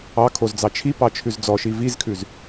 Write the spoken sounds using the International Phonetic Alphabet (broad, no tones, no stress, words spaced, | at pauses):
ɑkʰozd͡zɑ t͡ʃʰipɑt͡ʃʰʉz d͡zɔʃi vizkʰʉz